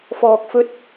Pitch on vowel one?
low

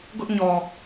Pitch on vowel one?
high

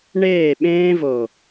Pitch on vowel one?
falling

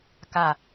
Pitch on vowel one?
falling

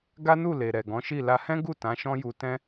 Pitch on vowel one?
high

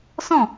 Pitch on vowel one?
falling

